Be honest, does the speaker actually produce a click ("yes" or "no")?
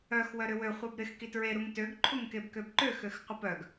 yes